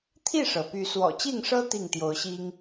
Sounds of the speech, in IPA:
t̪ʰ i˥˨ ʂ ɤ˩ p y˨˦ s w ɔ̰˨˩ t͡ɕ i˥˨ ŋ ʂ ɤ˦ t̪ i˥˨ ŋ t̪ j o˨˦ ʊ̯ ɕ i˦ ŋ

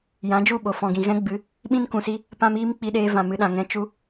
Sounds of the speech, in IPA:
j ã˨˦ d͡ʒ u˦˨ ɓ o˨ f ɔ̃˨ ɡ ĩ˨ ɣ ɛ̃˦ ɡ͡b ɨ˨˦ | ɓ ĩ˦ n k ũ˨ s i˦ | p ã˦ m iː˦ m k͡p i˧ ɗ eː˧ v ã˨ m ɨ˧ ɗ ã˨ ŋ ɛ̃˧ t͡ʃ u˦

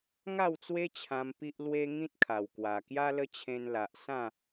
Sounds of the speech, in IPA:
ŋ a˥˧ w t͡s w e˦ t͡ɕʰ ã˧ m p i˦ ʔ l w e˦ ŋ ĩ˦ t̚ kʰ a˨˩ w k w a˨˩ k j a˦ l ə˦ t͡ɕʰ ẽ˧ n l a˨ ʔ s ã˥˧

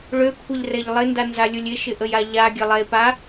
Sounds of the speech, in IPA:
ɭ ø kʷʰ ɛ ʎ r ɛ ʎ lˠ ɪ n d a n z a lʲ ʊ lʲ ɪ ʃ ɪ ʔ ə j a ʎ a ɡʲ ə lˠ ɛ e̯ p a

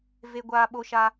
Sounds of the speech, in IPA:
v e˦ ɡʷ aː˦ ɓ o˦ ʃ a˦

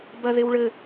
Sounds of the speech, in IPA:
b ɐ ð e w ɭ ɘ

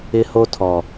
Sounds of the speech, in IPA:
ɪ˦ h o˦ tʰ ɔ˨

